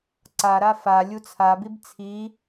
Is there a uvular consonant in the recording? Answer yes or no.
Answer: no